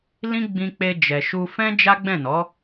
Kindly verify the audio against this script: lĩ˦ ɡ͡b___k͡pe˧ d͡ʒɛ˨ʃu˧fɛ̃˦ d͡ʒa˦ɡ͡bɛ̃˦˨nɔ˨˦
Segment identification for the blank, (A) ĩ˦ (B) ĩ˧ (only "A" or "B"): B